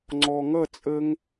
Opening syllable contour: low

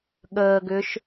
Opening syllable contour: low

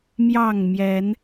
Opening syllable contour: falling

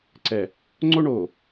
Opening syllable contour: low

